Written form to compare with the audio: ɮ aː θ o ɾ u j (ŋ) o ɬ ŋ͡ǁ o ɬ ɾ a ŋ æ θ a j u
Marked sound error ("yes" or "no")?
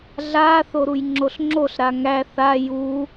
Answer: yes